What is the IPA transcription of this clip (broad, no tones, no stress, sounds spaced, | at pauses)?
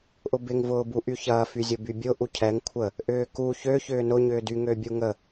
ʔ ʊ b ɪ ŋ v ʊː b u ʔ y ç ɐː f y zʲ ʊ b y bʲ ʊ ʔ u cʰ ɛ ŋ kʷʰ ə | ʔ ʏː k u ç ø ç ʏː n ʊ ɲ ʏː d y ŋ ø bʲ u ŋ ə